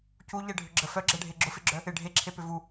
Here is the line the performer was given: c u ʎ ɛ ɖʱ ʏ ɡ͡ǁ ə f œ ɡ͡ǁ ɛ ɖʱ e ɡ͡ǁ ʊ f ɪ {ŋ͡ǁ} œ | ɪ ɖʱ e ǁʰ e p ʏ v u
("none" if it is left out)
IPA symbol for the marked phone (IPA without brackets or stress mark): ɡ͡ǁ